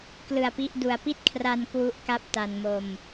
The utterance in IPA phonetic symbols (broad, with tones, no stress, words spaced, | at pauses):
klɯ˧a̯pi˦˥ʔdu˧a̯ pi˥˩t̚kʰra˧n kwu˦˥ʔka˦˥p̚ ta˧nmo˧m